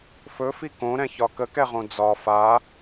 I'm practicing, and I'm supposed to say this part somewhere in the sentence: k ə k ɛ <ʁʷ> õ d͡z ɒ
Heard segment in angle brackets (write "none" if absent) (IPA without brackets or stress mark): ʁ